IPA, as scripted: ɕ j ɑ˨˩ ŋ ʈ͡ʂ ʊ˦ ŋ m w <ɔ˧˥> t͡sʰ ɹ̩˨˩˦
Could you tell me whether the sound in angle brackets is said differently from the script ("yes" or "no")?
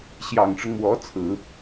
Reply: no